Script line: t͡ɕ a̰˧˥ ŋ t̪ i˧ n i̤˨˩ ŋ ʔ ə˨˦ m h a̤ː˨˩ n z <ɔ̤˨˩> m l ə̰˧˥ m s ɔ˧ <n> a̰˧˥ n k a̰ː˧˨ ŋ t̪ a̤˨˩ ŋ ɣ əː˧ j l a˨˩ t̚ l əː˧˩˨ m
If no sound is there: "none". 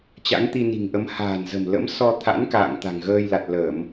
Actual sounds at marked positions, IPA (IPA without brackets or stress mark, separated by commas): ə̤˨˩, t̪ʰ